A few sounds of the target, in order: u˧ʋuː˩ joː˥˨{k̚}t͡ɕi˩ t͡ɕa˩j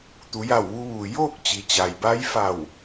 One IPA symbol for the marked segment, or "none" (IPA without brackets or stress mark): k̚